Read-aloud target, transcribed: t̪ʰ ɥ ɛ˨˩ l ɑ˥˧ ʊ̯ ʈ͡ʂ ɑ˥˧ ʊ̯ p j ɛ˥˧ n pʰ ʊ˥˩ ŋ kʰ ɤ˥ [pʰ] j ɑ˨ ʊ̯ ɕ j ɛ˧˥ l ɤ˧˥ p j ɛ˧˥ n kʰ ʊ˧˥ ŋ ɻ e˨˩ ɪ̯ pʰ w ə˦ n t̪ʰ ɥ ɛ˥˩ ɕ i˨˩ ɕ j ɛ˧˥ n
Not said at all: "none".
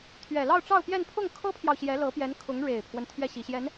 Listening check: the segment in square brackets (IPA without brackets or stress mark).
pʰ